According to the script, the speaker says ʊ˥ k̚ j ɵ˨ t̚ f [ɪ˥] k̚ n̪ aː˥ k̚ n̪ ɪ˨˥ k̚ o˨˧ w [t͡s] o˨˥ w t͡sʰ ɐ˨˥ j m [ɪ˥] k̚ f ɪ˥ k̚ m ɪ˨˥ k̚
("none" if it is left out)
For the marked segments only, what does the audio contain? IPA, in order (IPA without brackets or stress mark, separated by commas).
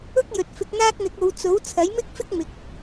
ɪ˧, t͡s, ɪ˥